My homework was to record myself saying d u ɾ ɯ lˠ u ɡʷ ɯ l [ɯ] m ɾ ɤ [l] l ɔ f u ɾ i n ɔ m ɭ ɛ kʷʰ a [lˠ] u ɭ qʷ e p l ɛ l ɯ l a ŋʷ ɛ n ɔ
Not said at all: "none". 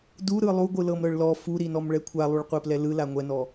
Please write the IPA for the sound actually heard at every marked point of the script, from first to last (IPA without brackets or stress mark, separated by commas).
ɤ, ɭ, lˠ